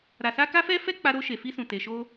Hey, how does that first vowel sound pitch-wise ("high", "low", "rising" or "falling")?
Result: low